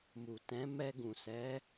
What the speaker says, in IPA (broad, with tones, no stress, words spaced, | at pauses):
mu˨tɛ̃˨˦ mɛ˧ɡũ˨ sɛ˨˦